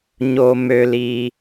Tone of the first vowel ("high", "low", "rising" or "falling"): low